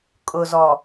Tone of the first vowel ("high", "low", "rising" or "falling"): low